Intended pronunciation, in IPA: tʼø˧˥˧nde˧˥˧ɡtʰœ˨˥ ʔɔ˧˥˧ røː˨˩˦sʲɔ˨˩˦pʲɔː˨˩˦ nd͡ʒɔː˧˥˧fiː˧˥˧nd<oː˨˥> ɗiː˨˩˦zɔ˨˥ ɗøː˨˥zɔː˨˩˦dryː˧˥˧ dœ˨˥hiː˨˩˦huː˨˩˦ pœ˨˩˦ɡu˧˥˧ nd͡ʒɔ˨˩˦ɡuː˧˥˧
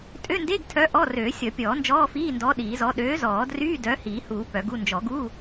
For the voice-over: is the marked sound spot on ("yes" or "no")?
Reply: no